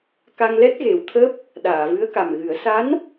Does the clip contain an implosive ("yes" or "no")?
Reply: yes